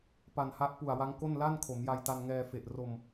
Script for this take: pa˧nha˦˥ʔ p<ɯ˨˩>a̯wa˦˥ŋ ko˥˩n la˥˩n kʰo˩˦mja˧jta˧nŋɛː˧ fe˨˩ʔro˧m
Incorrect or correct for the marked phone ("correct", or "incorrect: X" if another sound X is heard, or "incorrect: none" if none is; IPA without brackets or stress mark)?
incorrect: u˨˩